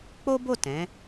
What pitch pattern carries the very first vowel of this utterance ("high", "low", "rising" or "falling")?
high